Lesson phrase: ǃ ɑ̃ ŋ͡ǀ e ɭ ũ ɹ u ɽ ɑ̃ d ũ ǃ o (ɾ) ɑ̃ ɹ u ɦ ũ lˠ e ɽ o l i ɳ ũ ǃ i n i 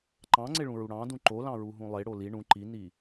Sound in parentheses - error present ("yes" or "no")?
yes